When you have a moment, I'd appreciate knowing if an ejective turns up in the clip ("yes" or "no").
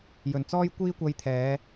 no